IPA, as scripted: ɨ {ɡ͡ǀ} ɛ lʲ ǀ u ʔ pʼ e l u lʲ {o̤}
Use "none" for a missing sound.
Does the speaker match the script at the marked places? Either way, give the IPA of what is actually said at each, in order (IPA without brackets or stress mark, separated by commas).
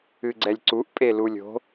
ɡ͡ǀ, o̤